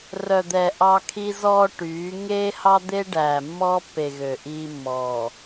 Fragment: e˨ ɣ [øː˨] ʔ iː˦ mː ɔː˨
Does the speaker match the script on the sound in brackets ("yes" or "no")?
no